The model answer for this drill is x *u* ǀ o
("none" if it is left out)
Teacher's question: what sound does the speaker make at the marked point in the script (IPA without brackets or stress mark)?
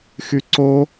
y